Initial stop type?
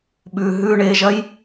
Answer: implosive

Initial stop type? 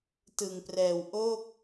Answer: plain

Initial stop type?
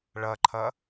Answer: click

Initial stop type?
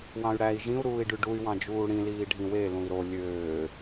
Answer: plain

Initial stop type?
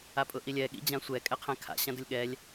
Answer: ejective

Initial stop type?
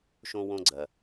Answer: click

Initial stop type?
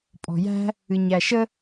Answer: ejective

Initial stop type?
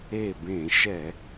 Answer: plain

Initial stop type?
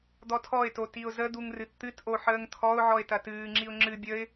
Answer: plain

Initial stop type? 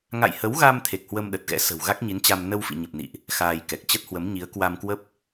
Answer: aspirated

